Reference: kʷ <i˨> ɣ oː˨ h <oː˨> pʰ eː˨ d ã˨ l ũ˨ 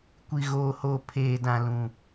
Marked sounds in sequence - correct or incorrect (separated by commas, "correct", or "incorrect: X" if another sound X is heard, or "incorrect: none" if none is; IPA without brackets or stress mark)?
correct, correct